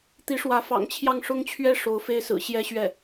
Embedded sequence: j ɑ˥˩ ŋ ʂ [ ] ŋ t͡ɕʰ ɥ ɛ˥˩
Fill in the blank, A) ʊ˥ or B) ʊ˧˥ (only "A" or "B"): A